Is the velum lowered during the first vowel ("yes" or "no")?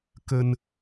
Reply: no